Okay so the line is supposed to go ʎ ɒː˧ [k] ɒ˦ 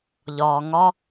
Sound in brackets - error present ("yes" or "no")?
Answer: yes